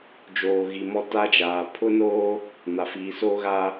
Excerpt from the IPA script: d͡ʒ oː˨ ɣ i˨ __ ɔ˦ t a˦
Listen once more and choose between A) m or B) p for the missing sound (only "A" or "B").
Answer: A